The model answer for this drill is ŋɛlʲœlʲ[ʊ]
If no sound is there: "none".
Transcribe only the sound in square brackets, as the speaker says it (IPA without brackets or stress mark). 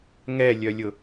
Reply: ʊ